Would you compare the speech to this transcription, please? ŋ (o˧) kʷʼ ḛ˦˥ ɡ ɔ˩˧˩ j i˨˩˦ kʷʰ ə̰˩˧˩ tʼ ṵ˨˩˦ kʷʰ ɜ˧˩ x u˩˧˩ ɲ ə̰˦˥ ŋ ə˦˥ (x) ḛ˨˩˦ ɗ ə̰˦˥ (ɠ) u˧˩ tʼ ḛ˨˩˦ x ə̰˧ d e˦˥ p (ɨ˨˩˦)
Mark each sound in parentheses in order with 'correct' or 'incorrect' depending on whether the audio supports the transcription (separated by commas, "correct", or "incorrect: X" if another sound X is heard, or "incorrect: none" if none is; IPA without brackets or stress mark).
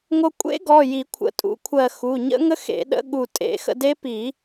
correct, correct, correct, incorrect: i˨˩˦